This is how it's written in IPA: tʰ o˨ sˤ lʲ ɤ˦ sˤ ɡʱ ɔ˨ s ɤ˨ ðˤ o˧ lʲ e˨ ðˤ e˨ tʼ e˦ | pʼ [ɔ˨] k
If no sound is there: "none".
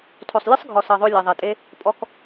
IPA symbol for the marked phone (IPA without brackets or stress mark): ɔ˦